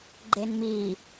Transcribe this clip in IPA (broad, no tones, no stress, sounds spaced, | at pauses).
ɡ͡ǃ e n m i